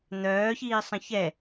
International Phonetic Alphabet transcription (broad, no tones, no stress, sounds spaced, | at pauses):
n̪ œː ç iː sˤ ə̃ ç ɛ